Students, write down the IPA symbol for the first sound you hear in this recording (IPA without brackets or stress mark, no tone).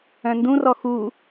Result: œ̃